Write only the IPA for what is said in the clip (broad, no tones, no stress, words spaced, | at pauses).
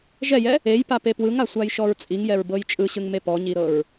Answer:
ʒɛjɛ | ejpape pwɯŋasʷajʃɔɹ t͡sʼiŋjɛɹbɤj t͡ʃʼɯɕɯŋme pɔɲiɾɤɹ